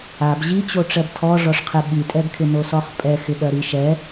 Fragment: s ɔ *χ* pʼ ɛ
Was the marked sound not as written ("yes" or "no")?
no